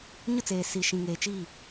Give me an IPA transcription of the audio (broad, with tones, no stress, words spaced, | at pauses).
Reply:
ɲʊ˦t͡seː˨si˨ ʃĩ˨ŋeː˨t͡ʃiː˦˨